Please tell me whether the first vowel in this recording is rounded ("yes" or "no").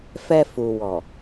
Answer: no